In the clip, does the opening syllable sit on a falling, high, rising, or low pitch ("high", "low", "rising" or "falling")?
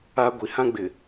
high